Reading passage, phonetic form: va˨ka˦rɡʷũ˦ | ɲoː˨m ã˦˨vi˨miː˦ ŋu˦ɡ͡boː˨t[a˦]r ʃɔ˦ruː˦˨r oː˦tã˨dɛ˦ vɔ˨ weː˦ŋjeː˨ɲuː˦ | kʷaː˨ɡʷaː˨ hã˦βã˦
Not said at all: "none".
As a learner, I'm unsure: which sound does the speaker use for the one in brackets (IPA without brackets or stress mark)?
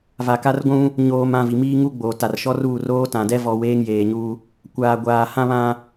a˨